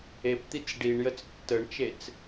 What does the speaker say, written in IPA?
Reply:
e p t̪ i t͡s ɖ i ɳ j ə t͡s tː ə ɳ t͡ʃ e t͡s

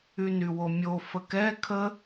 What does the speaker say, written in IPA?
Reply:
y n y w o mʲ o f ə k ɛ kʰ ə

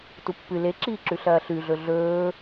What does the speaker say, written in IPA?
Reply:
t u pː ɨ l e ǁ iː ǁ ʉ ɬ ɐː ɬ ʉ ɮ ɵ ɮ ɵː

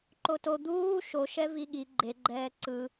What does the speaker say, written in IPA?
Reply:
ǃ o t o d̪ uː ʃ o ʃ ɛ v i ɠ i ɡ͡ǃ e ɡ͡ǃ ɛː ǀ ɯ

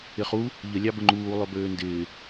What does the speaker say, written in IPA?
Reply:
ɪ χ u | ʎ ə lʲ ɑ b ə ŋ͡ǃ uː lˠ ø b øː n d ɪː

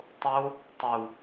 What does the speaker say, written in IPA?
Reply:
tˤ o | tˤ u

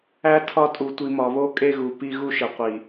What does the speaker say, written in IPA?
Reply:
æ˦ tʰ ɒ˦ tʼ u˨ tʷ i˨ m ɒ˨ β o˦ kʼ e˦ ɣ u˨ p i˦ ɣ u˦ ʃ e˨ qʷ i˨

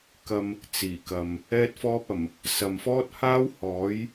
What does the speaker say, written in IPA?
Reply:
k ɐ˧ m | t͡s iː˨˩ k ɐ˨ m | ɛː˥ t̚ f ɔː˥ p̚ ɐ˨˩ m | s ɐ˨ m f ɔː˥ t̚ h aː˥ w h ɔː˨˥ j

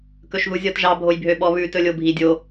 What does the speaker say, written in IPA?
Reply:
k ɵ ʃ ð u zʲ ɔ t ʒ ɑ bʱ o j bʱ ø ɓ ɔ β ʉ t ɵ lʲ o bʱ i dʲ o

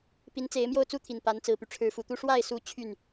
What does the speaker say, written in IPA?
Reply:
p i˧˥ n t͡s e˧˥ ɪ̯ m j o˥˩ ʊ̯ t͡s u˥ t̪ʰ i˨˩ n p a˧˥ n t͡s ɹ̩˨˩ p y˦ ʈ͡ʂʰ ɻ̩˧˥ f u˨˩ t̪ u˥ ʂ w a˥˩ ɪ̯ s u˧˥ t͡ɕʰ y˥˩ n

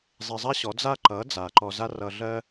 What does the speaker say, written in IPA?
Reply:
zˤ e˧ zˤ a˥ ɕ ɔ˩˥ d͡z a˥ ǃ ʌ˩˥ d͡z a˩ ǃ ɔ˧ z a˥ r ʌ˧ ɮ ɜ˥

